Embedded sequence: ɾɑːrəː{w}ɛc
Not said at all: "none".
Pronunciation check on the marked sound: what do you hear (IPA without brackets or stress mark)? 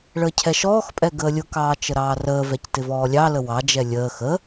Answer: v